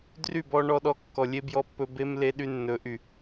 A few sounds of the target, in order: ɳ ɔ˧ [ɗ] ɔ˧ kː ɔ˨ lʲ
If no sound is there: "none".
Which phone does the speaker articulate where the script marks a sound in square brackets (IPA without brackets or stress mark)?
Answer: ɗ